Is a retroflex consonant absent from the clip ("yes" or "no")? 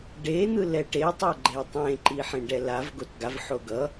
no